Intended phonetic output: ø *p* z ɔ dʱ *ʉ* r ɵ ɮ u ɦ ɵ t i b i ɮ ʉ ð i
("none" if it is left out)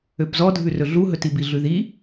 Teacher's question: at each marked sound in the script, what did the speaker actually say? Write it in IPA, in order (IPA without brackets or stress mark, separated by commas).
p, ʉ